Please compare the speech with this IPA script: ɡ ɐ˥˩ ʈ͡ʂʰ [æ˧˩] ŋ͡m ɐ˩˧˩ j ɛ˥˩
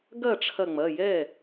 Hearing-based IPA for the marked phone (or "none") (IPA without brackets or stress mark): ɐ˧˩